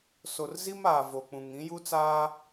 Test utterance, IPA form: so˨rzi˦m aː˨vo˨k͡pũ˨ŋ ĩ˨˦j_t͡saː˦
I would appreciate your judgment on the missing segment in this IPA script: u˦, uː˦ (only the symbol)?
u˦